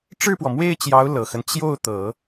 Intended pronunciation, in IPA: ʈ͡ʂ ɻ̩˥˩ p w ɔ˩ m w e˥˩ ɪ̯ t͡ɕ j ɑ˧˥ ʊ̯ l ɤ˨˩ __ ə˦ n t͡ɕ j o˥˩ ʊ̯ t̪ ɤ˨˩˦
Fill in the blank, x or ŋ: x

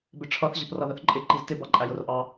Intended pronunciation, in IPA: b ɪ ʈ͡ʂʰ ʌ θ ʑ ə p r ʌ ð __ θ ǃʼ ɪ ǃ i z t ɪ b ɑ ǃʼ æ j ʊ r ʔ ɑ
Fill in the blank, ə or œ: ə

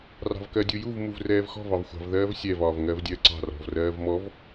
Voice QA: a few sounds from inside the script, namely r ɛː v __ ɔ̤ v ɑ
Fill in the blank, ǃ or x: x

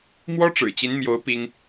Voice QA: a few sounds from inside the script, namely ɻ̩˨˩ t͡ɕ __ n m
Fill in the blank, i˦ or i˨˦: i˨˦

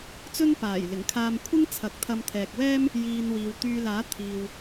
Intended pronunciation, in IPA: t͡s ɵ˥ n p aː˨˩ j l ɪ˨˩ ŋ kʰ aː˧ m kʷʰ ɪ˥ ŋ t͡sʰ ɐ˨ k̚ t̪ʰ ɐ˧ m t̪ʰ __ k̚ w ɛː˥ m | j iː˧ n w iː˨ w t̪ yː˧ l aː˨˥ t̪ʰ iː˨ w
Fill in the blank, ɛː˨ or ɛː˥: ɛː˨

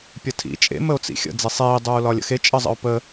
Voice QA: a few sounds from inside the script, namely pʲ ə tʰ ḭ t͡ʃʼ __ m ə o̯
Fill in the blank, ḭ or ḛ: ḛ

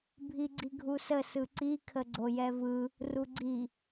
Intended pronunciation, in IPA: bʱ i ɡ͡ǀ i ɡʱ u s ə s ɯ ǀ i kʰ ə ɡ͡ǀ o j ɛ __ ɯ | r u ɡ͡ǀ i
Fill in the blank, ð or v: v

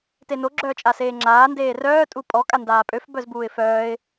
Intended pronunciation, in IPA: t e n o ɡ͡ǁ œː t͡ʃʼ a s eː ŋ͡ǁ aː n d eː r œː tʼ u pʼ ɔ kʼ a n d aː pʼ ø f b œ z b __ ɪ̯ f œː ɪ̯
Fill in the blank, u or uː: uː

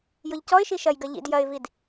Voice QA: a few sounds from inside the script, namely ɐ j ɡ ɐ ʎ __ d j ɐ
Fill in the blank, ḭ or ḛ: ḭ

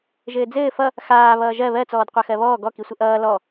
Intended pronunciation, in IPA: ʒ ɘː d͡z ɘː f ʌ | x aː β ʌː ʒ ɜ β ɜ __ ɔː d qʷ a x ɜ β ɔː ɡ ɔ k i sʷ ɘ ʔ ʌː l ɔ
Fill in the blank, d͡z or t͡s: t͡s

